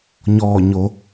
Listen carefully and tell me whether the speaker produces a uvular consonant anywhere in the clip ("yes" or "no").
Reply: no